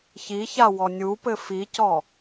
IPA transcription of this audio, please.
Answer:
ç i ç a w ɔ nʲ u p ɘ f i c ɔ

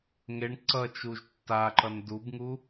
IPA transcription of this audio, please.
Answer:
ŋ e ɳ ǀ ʌ t͡ʃ u ʒ tː a ǃ ʌ n d u b ŋ u

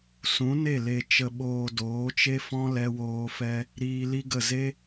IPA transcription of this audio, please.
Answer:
s ũ˨˦ n e˦˨ l e˨ t͡ʃ ə˨ ɓ oː˨ d oː˨˦ t͡ʃ e˦ f ɔ̃˦ l ɛ˧ w oː˧ f ɛ˦ | ɾ iː˧ l i˦ ɡ ə˦˨ z e˦

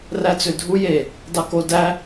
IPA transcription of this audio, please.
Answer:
r æ t͡s ø dʱ u j e | d ɑ k o d æ

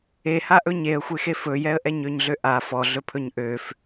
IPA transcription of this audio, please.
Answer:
e h a ʔ ɵ ɲ e ə̯ xʷ e x e f ɵ j ɛ ə̯ ʔ ɛ ɲ ø ɲ ɮ ø ʔ a f ɔ ɮ ɵ pʰ ɵ ɲ ʔ ø f

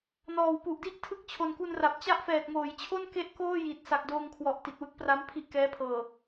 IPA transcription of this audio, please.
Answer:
n ɔː˨˩ w p u˨˩ ʔ d i˥˩ ʔ tʰ ɯ˦˥ k̚ t͡ɕʰ o˨˩ n k u˧ n r a˨˩ p̚ t͡ɕ a˦˥ ʔ f ɛː˨˩ t̚ ŋ oː˩˦ j t͡ɕʰ o˥˩ n k e˥˩ ʔ k oː˥˩ j i˨˩ t̚ s a˨˩ k̚ d oː˧ ŋ kʰ w ɔ˨˩ ʔ t i˨˩ t̚ w ɯ˦˥ k̚ p r a˦˥ m pʰ i˥˩ ʔ k ɛː˦˥ pʰ ɤː˨˩

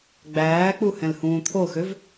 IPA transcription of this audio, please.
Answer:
ɡ͡b æː k͡p u h ɛ̃ l h ũː t̪ʰ o x ø v

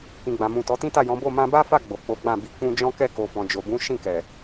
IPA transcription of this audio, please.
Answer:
k ĩ˨ ɡ͡b ã˨ m ũ˨ t ɔ˨˦ t ĩ˦ t a˦˨ j ɔ̃˨˦ b o˦˨ m ã˧ b a˦ f a˦˨ ɡ͡b o˨ k͡p o˨˦ ɡ͡b ã˦˨ b i˧ k͡p ũ˦ d͡ʒ ɔ̃˦ k ɛ˦˨ k o˨ f ɔ̃˨ d͡ʒ o˨ b ũ˨˦ ʃ ĩ˦˨ k ɛ˨

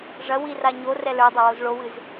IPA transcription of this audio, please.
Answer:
ʐ ɐ w i r a ɲ o r ɛ l ə˞ dˤ ɐ w o z ɭ o w ɨ z

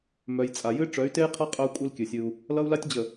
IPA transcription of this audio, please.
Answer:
m œ˨ j t͡sʼ a˨ j ɨ˦ ʈ͡ʂ œ˨˦ y̯ t e˦ j qʰ ʌ˦ qʼ œ˦ u̯ kʷʼ ɨ˦ l kʲ ɨ˨ sʲ ɨ˦ u̯ | l ʌ˦ u̯ l a˦ tʲ d͡ʑ ə˨

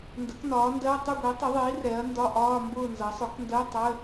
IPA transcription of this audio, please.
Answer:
n d ə˩˥ k n ɒː˩˥ n d ɜ˧˥˧ tˤ ɪ˥˨ ɡʷ i˩˥ tˤ ʊ˩˥ ðˤ iː˩˥ r ɛ˩˥ ɐ̯ n d ɒ˧˥˧ ʔ ɒː˧˥˧ m b ʊː˥˨ n z ʌ˩˥ sˤ ʊ˩˥ k n d ɜ˧˥˧ tˤ ə˧˥˧

